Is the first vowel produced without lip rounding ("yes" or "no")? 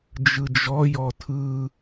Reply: yes